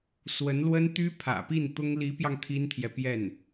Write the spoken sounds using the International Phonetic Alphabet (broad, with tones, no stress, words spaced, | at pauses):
swə˧˥nlwə˥nt̪y˥ pʰä̰˨˩pi˥˩nt̪ʊ˥ŋ li˧˥pjɑ˧ŋ t̪ʰi˥nt̪ʰjɛ˨pjɛ˥˩n